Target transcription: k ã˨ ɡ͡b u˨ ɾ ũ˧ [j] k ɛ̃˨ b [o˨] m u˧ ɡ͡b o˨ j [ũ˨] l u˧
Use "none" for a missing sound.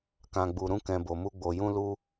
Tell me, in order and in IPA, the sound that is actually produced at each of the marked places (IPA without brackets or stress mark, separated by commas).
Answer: none, o˨, ũ˧